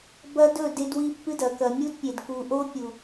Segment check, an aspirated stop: absent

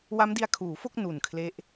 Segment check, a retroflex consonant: absent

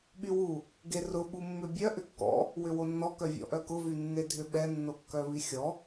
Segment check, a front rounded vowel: present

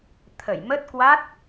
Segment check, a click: absent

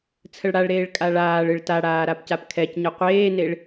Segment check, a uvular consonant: present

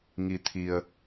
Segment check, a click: absent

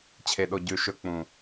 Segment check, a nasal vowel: present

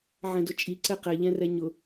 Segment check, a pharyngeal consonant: present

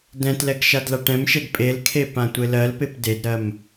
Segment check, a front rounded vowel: absent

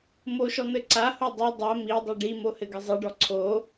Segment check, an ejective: absent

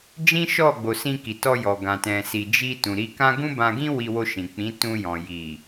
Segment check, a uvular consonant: absent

